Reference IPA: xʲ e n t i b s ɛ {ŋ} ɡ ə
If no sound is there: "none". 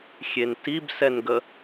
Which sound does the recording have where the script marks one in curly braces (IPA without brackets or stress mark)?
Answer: n